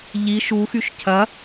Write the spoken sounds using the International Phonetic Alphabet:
ʎ i ʃ u x y ʃ cʰ ɐ

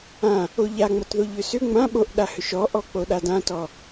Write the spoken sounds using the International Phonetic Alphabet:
ã | o ʎ a ŋ͡m ʌ t ð o ʎ ʏ s ʏ ŋ͡m ã ɓ o ʔ ɗ a h ʏ ʃ ɔ ʔ ɔ k͡p o ɗ a d ã t ɔ

